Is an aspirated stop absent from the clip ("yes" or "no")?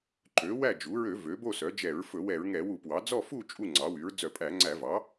yes